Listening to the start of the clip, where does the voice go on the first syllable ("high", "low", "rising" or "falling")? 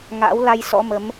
rising